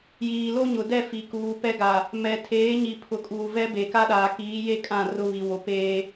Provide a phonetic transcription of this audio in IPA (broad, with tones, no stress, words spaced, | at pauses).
jiː˨lo˦ɲʊ˨dɛ˦˨ fi˨kuː˨pɛ˦ ɡa˨ | mɛ˨ tʰeː˨˦ɲi˨ pʰʊ˨kʼuː˨vɛ˦be˨ ka˦ɗaː˨kiː˨˦je˦ kʼã˦˨ rʊ˦βi˨ wo˨peː˦